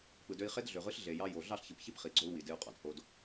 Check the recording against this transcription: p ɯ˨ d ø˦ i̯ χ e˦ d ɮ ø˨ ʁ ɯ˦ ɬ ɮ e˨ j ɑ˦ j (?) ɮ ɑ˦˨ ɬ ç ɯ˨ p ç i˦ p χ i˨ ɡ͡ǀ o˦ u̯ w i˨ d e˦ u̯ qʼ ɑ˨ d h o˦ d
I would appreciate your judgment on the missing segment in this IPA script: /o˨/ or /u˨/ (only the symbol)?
o˨